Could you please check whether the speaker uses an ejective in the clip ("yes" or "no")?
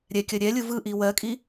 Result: yes